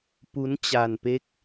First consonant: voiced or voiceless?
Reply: voiceless